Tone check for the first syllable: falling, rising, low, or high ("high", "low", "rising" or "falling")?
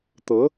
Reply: rising